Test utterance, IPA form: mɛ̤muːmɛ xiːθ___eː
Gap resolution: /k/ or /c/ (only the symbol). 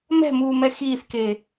k